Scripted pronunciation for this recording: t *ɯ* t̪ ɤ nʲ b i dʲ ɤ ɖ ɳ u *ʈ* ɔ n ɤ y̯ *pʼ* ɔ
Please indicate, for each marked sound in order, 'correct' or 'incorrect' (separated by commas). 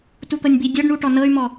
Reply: incorrect, correct, incorrect